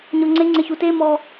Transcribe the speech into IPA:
ɲ ɔ ŋ͡ǀ e ŋ͡ǀ e ç u t e m ɔ

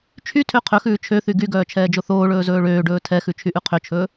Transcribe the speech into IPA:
t͡ʃʰ y tʰ ø qʰ ɵ x ʉː t͡ʃʰ ø θ y ɡ y ɡ œː t͡ʃʰ ɛː d͡ʒ o θ oː ɭ ɵː z ɵː ɭ øː ɖ ɵː tʰ ɛ x ʉ t͡ʃʰ y ʔ ʉ qʰ ø t͡ʃʰ ɵː

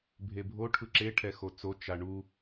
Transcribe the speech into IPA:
bʱ e bʱ o ʈʰ ɯ ǁ e ʈʰ ɛ x o t͡s o t͡ʃ a ɳ u

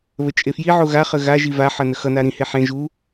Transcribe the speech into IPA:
β ə t͡ʃʼ e f j i ʕ o ɣ a χ ə ɣ a ʒ i v a ħ ʌ n ə x ʌ n a ɾ ĩ h e ħ ẽ ʒ u

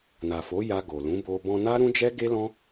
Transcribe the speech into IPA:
n a˨ f o˨˦ j a˧ ɡ o˨ l ũ˨˦ b o˧ b ɔ̃˧ n a˦ ɾ ũ˦ d͡ʒ ɛ˦ ɡ e˦ l ɔ̃˦

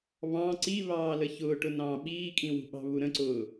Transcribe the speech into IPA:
β ɑ̃ ǀ i β ɑː l ə ç ʊː ʈ ʊ n ɑ̃ː ɓ iː kʼ ĩ w ṳ ɓ ɑ̤ β u ɾ ə̃ ǀ ʊː

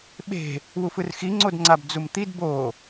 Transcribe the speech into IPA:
ɓ e̤ | w u f ɯ r x i ŋ͡ǀ o d ŋ͡ǀ a b d͡z u m t̪ i d b o

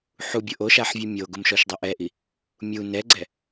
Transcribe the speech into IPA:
ħ u bʲ ʊ ʔ o ʃ a ħ vʲ ʊ mʲ o ɡ ʊ m ʃ ɔ ʃ dˤ ɪ ʔ ɛ ʔ i | mʲ u n ɛ ɡ͡ǀ ɛ

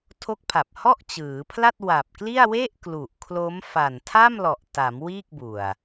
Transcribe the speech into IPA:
tʰ o˦˥ k̚ pʰ a˨˩ p̚ h ɔ˥˩ ʔ t͡ɕ ɯː˩˦ pʰ l a˥˩ t̚ w a˨˩ p̚ k l i˥˩ a̯ w e˥˩ ʔ k l u˨˩ ʔ kʰ l o˦˥ m f a˨˩ n tʰ a˥˩ m l ɔ˨˩ ʔ t a˩˦ m w iː˥˩ k̚ b u˨˩ a̯

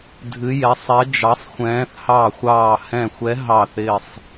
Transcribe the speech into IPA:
dʱ ɨ˨˦ j ɛ˨˦ sˤ ɛ˨˦ d͡ʒ ɑ˨˦ sˤ xʷ ɛ̃ː˨˦ θ h ɑ˧˩ xʷ ɑː˧˩ h ɛ̃˧˩ xʷ ɛ˨˦ ɦ ɑː˧˩ θ ɪː˧˩ sˤ

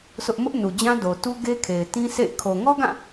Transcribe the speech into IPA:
s ʊ˦ ʔ m ʊ˦ ʔ n u˨ d͡ʑ ã˦ d o˨ t u˦ ɡ e˦ kʰ e˨ ɪ̯ t ĩ˦ s ḛ˦˨ ɪ̯ kʰ o˨ ŋ ɔ˦ ɡ ã˦˨

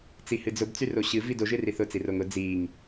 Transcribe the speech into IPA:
t͡s i h ɨ d͡z ʊ b t͡s y r o ɕ ɨ v i d o ʒ ɨ r i θ ʊ t͡s i r o ŋ ʊ d͡z i ŋ

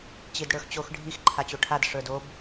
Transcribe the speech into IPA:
t͡ɕ i d ɽ ə˞ x t͡ɕ o x ɖʱ i x ǃʰ a t͡ɕ o ʈʰ a d ʂ ə˞ d o b

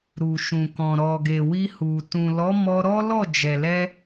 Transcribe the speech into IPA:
ɾ u˨ ʃ ũ˨ k ɔ̃˨ ɾ ɔ˨ ɡ e˨ w i˧ h u˨ t ũ˨ l ɔ˨˦ m ɔ˧ ɾ ɔ˦ l ɔ˦˨ d͡ʒ ɛ˨ l ɛ˧

